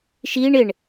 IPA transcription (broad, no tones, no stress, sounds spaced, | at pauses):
ʃ i ɳ ɪ ɳ